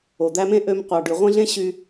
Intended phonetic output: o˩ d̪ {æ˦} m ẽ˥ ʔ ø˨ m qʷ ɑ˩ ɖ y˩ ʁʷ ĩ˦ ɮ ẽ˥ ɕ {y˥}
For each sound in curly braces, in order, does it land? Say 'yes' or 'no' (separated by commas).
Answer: yes, no